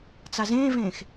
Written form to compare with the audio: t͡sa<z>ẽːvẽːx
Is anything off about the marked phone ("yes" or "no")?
no